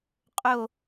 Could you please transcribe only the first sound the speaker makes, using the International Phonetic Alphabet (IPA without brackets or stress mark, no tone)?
qʼ